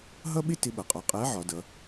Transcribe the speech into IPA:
ɦ ʌ˥ ɓ ɪ˥ t ɪ˧˥ ɓ ʌ˩ qʼ ɒ˧˥ qʼ æ˧˥ ʕ ɒ˩˧ d ʌ˩˧

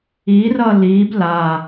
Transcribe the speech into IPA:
i r ʌ l i b l a

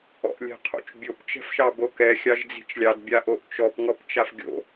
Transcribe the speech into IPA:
ɔ̰ ʔ lʲ ɛ̤ qʰ o̰ t͡ʃ bʲ o p t͡ʃ ɛ̤ f ʃ ɑ b o k ɛ xʲ ɑ ʒ d͡z i̤ t͡ʃ lʲ ɑ d bʲ a ʔ o ʔ t͡ʃ ɔ p ŋ ɔ p t͡ʃ a f ɡʲ o̰

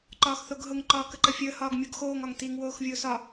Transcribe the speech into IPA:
ǃ ɒː x θ o ɡ ɦ ʊ ŋ ǃ ɒː k ə ǃ ə fʲ əː h ɒː ɡ mʲ o ɡ x oː ŋ ɒ ŋ t i ŋ w oː x vʲ ʊː s ɒ

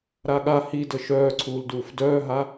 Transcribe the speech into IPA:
ɾ a ɠ a h i d ə ʃ œː ǀʰ uː l d uː f d œː ɦ a

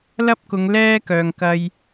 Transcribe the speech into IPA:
l ɐ˥ p̚ k ʊ˨˧ ŋ l ɛː˥ k œː˨ ŋ k ɐ˧ j

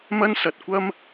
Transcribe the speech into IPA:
m ɐ˥ n s ɐ˧ t̚ kʷ ɐ˥ m

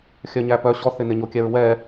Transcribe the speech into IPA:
xʲ œ ɲ æ p œ ɕ ɔ θ ɪ n ɪ ɲ o kʲ ɛ ɹ w ɛ

